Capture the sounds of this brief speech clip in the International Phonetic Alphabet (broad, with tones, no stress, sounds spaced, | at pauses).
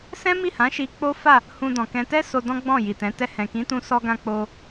s ɛ̃˦ m i˦˨ h ã˨˦ ʃ i˧ k͡p o˦ f a˦˨ | h ũ˧ d ɔ̃˨ k ɛ̃˧ t ɛ˦ s o˧ d ɔ̃˦ ɡ͡b ɔ̃˦˨ j i˨ t ɛ̃˨˦ t ɛ˧ h ɛ̃˨ k ĩ˨˦ t ũ˧ s ɔ˧ ɡ ã˧ k͡p o˧